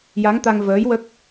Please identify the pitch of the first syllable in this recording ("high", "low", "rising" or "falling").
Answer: rising